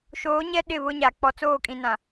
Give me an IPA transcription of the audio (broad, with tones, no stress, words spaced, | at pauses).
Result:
ʃoː˨˦ɲɛ˦ ɗɪ˦˨βʊ˦ɲa˨ k͡pɔ˨t͡soː˦˨kʼĩ˨ nã˨